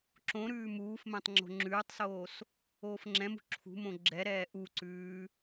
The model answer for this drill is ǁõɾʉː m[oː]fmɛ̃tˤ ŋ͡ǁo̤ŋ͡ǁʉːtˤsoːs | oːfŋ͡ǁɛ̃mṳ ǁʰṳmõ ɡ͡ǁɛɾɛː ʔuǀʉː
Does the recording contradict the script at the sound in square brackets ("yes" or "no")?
yes